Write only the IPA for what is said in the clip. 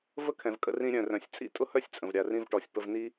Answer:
və˥kʰɛ̃˩vkʼə̰˧rĩ˧ ɾʲœ̃˩rœ̃˩sʲ t͡sʼḭ˥tʼʊ˥hœ˥sʲt͡sʼə̃˩v ɾʲa˩rĩ˧vʈɔ˩sʲ pə˧vni˥

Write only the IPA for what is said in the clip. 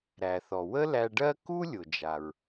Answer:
ɾæ˩θɔ˩ wə˥læ˧ɖɜ˥ ku˥lʲʊ˩d͡ʒa˩ɹ

